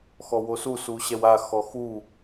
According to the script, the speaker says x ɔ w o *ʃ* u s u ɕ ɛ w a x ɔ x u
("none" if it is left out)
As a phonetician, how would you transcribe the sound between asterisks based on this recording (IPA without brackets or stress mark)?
s